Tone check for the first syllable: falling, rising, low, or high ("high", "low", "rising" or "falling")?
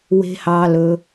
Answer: low